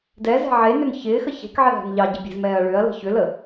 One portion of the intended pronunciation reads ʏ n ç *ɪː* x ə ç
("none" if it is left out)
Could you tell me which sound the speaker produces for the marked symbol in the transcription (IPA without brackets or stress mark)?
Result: ɪː